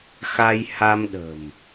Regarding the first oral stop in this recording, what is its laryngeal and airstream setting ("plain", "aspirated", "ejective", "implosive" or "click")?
implosive